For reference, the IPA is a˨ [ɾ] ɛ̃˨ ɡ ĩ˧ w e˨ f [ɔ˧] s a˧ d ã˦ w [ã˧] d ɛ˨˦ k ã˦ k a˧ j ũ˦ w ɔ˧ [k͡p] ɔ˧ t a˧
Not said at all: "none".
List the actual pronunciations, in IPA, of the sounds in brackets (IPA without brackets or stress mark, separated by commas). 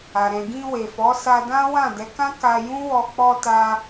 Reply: ɾ, ɔ˨˦, ã˦˨, k͡p